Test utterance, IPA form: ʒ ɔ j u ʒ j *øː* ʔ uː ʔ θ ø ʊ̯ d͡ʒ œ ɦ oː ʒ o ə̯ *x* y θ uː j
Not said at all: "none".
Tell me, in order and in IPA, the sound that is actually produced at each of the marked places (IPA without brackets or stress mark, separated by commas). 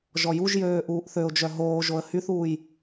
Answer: øː, h